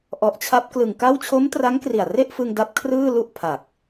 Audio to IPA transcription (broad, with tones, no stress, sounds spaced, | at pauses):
ʔ ɔ˨˩ ʔ t͡ɕʰ a˦˥ p̚ k l ɯ˨˩ ŋ k a˥˩ w t͡ɕʰ o˦˥ m t r a˦˥ ŋ k r i˨˩ a̯ r e˥˩ ʔ f ɯ˧ ŋ d a˦˥ p̚ kʰ r ɯː˥˩ l u˥˩ ʔ pʰ a˨˩ k̚